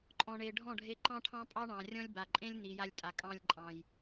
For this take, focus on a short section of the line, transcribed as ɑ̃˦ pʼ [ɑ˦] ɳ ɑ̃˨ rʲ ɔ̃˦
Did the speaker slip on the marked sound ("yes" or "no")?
no